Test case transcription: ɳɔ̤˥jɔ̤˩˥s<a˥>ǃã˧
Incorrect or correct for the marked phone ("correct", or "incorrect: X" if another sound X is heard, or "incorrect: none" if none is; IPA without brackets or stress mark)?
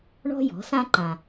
incorrect: ã˥